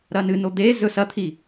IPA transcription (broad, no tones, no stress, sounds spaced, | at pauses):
ɾ ɐ n ɨ n o d̪ e z ɵ s ɐ t̪ʰ i